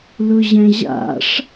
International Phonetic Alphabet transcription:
lʊʑɛ̃ʑa̰ʂ

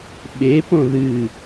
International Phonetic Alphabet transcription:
ɓe põðɨ

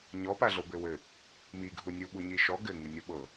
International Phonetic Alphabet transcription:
ɲɔpaɮobɘ wɘ | mi ɡʱunʲuɓu ɲiʃɔ ɡɘ ŋɨnʲoɓɤ

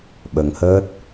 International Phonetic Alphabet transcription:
ɓə˧ŋhəː˦˥t̚

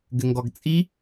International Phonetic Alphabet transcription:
ɡɘŋɡɔɡt͡sʼi

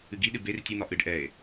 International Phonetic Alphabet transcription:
ɨɡiɗɨ ber tʲɨn̪ɒ ʔɨɖ ʔɛe̯

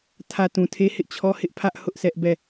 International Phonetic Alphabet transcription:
tʰä˨ tũ˨tʰe˦hɪ˦ʔ t͡ɕʰɔ˦ hɪ˦ʔpʰä˦ʔ hʊ˦ʔsɛ˦ʔbɛ˦˨

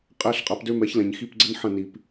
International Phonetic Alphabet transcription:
qʼæ˧˥˧ɬqʼa˨˥pdø˦˥mɛ˨˥ç lɛ̃˨ɲxi˧˥˧pɡ͡ǀə˦˥n ħɐ̃˥˩ ni˨p

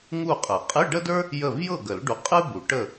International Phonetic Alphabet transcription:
ŋu˥˨qʼə˨˩˦ qʼɨ˧˥˧ɖə˥də˞˥ | jə˥˨v jɤ˥˨ɡə˨˩˦lɖu˨ qʼɨ˥ bu˨˩˦ʈə˥˨

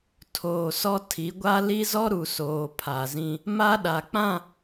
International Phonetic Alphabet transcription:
tʰoː˨sɔ˦ tʰi˨˦ɡʷa˦ li˦zɔ˦ ɾu˨soː˨ pʰa˨zĩ˦ | ma˦ɗa˨k͡pã˦˨

